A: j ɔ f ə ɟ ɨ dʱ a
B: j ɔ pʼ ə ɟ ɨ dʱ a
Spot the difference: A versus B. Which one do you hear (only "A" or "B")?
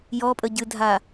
B